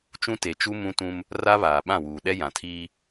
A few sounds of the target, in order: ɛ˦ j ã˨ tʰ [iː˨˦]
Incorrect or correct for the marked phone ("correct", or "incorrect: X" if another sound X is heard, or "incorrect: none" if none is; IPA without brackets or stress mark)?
incorrect: iː˦